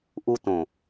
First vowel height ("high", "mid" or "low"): high